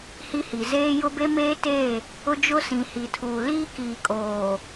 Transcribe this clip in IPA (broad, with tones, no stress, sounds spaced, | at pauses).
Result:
h i˦ h i˨ z eː˦ j ʊ˦ b e˦ m eː˦ t e˦˨ | ʊ˦ d͡ʒ ʊ˦ s ĩ˨ h i˨ tʰ uː˨ l iː˦ k iː˨ kʼ oː˨